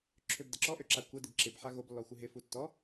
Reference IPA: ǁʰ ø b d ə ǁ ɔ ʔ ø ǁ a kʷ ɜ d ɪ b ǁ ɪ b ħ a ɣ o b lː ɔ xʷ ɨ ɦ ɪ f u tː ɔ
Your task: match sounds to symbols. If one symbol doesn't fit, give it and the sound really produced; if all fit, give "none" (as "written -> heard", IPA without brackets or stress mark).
none